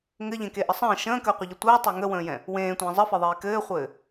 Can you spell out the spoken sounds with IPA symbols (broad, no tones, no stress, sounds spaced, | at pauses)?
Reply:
ŋ ɘ ʎ ẽ k e ʔ ə sˤ ə̃ː ʃ ə̃ː k əː qʷ ɘ ʎ ə tʷ əː tˤ e ŋ ə w ə̃ː j ɛ̃ | w ẽː tʷ ə̃ː zˤ ə f ɛ ðˤ eː k ɘː χʷ ɘː